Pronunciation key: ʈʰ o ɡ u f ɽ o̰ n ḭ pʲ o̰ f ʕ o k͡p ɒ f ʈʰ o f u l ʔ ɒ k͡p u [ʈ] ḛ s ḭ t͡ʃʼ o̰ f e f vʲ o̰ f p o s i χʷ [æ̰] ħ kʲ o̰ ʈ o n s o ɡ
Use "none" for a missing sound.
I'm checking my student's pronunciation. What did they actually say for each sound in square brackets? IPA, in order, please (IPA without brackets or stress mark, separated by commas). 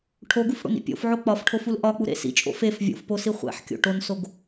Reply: ɾ, æ̰